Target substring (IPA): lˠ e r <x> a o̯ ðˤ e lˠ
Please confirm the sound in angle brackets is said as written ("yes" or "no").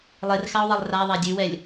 yes